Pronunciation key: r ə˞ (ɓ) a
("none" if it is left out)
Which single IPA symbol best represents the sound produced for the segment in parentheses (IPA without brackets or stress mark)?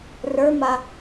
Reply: m